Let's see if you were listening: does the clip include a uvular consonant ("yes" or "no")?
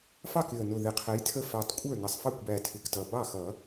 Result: yes